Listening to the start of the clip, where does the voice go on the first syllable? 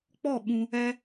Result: falling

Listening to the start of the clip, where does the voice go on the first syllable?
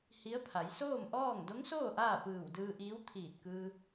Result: rising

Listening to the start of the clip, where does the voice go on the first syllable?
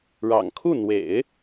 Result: low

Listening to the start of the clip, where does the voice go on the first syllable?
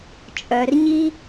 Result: low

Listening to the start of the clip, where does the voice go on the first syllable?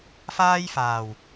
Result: high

